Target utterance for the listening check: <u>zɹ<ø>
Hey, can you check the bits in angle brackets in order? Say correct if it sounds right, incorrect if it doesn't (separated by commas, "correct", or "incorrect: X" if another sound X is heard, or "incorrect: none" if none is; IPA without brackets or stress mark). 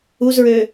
correct, correct